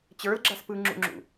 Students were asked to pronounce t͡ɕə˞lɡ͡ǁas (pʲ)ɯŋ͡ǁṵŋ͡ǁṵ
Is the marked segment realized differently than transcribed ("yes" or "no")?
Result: yes